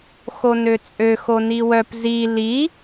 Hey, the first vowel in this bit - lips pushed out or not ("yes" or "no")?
yes